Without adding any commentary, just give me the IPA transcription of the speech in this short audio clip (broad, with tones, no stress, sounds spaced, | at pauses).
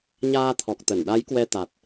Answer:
ɲ aː˧ t̪ʰ ɔ˨˩ k̚ t̪ ə˧˩ n ɗ a˨˦ j k w ɛ˧ t̪ a˨˩ t̚